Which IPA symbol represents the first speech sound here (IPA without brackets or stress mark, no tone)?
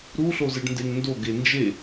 ɾ